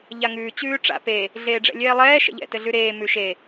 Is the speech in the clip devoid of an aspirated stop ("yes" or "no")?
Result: yes